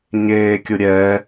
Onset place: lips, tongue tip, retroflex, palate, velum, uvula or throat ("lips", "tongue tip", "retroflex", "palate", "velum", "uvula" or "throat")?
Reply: palate